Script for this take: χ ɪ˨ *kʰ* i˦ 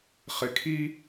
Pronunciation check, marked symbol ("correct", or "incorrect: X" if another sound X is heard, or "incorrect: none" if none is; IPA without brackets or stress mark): correct